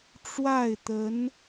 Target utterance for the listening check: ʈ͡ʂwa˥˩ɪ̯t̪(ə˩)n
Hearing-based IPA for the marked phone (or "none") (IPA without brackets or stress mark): ə˧˥